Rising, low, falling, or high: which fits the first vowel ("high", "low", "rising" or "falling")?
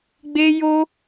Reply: high